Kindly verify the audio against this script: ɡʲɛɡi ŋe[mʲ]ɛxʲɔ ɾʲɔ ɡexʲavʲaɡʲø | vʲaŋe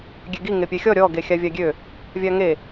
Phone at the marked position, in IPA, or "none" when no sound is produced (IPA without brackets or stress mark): pʲ